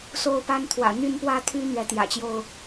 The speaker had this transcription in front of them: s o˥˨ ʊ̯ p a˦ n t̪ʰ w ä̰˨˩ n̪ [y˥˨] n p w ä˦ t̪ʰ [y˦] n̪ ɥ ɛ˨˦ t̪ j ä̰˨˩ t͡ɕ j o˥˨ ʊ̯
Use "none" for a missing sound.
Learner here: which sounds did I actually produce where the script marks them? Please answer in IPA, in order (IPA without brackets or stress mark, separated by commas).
y˥˨, y˦